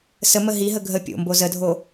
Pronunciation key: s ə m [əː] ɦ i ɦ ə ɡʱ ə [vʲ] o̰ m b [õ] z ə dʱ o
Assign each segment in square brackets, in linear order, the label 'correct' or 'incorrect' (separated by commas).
incorrect, incorrect, incorrect